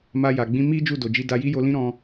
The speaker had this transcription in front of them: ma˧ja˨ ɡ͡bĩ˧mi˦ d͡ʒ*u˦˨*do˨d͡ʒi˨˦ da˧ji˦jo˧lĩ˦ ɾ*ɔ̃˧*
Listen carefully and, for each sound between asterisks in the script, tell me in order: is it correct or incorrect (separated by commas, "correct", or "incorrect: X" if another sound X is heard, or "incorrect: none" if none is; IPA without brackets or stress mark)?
correct, correct